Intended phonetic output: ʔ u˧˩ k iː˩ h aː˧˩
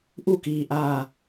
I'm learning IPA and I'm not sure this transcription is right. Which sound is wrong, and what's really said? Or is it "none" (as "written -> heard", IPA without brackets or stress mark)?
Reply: h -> ʔ